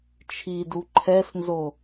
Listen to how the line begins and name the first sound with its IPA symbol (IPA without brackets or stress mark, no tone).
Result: t͡ʃʰ